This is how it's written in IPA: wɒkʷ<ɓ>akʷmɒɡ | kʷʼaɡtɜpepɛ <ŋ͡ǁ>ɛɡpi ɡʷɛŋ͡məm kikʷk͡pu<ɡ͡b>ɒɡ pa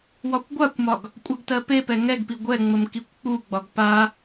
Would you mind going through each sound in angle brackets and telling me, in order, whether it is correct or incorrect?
incorrect, incorrect, correct

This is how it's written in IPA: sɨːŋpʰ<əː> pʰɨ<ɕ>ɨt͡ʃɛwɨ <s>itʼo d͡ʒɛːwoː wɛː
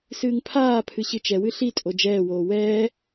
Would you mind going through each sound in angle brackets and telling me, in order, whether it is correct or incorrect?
incorrect, correct, incorrect

